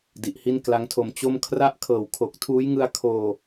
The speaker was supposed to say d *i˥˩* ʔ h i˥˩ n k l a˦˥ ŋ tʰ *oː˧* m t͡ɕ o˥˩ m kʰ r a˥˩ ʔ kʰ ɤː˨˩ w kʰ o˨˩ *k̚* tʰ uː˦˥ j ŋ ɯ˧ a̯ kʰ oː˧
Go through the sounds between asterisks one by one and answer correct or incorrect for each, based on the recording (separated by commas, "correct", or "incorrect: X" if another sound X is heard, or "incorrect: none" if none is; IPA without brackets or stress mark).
incorrect: i˨˩, incorrect: o˧, correct